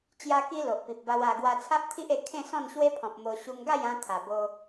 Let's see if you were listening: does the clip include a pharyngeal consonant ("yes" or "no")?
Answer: no